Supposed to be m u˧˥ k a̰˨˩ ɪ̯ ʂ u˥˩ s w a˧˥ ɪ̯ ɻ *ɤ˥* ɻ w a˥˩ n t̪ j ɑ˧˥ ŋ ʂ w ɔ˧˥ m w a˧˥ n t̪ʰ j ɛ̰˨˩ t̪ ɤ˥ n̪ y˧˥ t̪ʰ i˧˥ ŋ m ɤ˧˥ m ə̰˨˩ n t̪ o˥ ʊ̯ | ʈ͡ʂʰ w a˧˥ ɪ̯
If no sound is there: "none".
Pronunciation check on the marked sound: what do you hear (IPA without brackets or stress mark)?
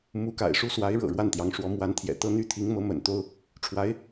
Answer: ɤ̰˨˩